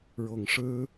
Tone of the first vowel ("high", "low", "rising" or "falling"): low